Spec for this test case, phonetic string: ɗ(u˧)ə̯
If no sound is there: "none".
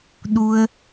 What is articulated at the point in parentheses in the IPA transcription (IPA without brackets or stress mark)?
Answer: u˧